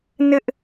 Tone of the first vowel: high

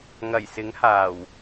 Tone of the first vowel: low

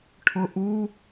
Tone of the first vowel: low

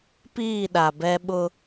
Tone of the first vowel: falling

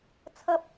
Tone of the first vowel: high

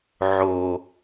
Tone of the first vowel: low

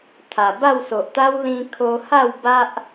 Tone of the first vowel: low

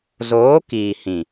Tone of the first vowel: rising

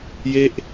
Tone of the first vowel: falling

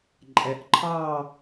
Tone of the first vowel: rising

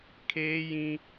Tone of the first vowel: high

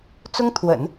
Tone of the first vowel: high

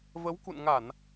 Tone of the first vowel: rising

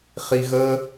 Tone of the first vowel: low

